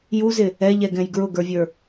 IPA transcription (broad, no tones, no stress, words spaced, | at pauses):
juzɪ | ɛʎɛɡɛ̃j ɡɹʊɡə˞vʲə˞